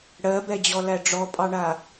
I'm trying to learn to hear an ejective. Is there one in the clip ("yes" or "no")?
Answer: yes